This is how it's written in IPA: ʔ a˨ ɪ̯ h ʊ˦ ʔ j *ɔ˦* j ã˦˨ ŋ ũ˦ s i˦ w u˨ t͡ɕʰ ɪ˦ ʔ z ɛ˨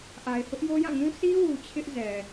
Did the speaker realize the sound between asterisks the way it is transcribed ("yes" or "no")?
no